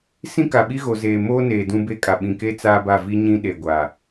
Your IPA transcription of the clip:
sĩ˦ka˨ɓi˦ ɣo˨zeː˨ moː˦neː˨ dũ˦be˦kʼa˨ ɓĩ˨ke˦ t͡saː˦ba˦˨ vi˦ ɲĩ˦ɗe˨ɡʷa˨

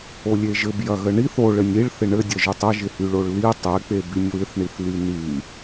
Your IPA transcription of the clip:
olʲeʒɘb jɐɣəɳiθ o ɭɘnʲiɭ θɪɳɘdʲɐʒytˤ əʒɪhyɭoɭ li tˤek͡pe bynʲwɪθɳiθ lyny

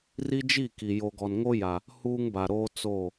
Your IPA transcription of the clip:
ri˦d͡ʒi˦˨ ki˨ jo˨ɡɔ˨nŋo˦ ja˨ | huː˦ŋba˨ɾoː˦ t͡soː˦˨

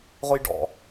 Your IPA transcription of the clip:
ʁʊjɖɔ̰

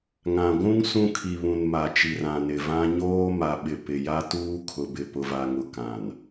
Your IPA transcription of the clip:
ŋã˨ ɡʷũ˦ŋ sũ˦kʰi˨βũ˨n ma˨t͡ʃi˨r ã˨nɪ˨vã˦ ɲoː˦ ma˨ɓɪ˨ pɪ˨ja˦tuː˦ kʰʊ˨bɪ˨ pʊ˨va˨ŋʊ˨ kã˨n

